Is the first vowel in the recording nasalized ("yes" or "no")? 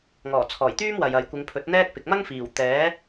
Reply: no